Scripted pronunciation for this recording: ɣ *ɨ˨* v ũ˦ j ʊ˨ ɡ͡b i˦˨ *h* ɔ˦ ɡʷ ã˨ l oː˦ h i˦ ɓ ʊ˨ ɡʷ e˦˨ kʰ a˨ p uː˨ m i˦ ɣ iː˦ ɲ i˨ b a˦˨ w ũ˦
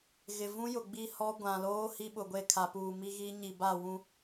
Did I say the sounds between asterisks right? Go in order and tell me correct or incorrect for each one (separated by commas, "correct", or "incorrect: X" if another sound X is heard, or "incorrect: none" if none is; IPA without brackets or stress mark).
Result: incorrect: ɪ˨, correct